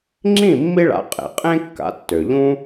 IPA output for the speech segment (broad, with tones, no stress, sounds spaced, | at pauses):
ŋ͡ǁ ĩ˥˩ mː i˥ ɭ a̰˩˥ qʼ ḛ˩ qʼ ẽ˥ kː a̰˩˥ tː ø˩ ʎ ũ˥